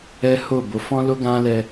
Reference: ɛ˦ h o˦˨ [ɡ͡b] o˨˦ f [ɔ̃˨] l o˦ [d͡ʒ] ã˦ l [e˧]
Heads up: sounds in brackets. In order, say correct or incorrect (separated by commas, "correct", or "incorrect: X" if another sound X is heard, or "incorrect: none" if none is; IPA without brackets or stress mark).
incorrect: b, incorrect: ɔ̃˦, incorrect: ɡ, incorrect: ɛ˧